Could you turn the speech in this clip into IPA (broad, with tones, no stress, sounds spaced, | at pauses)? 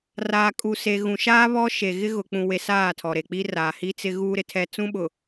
r aː˨ kʼ u˨ s e˨ ɣ ũ˨ ʃ aː˦ β ɔ˦ ʃ e˨ ɣ ɪ˦ ɣ ʊ˨ k͡p ũ˨ w e˨ s aː˦˨ tʰ ɔ˨ ɾ e˨ k͡p i˦ r aː˨ h i˦ t͡s ɪ˦ ɣ uː˦ ɾ ɪ˨ tʰ ɛ˦ t͡s ũ˦ ɓ ʊ˨